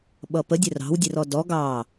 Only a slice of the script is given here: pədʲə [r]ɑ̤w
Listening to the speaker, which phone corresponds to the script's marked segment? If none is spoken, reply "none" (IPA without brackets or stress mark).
r